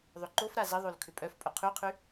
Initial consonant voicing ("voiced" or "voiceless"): voiced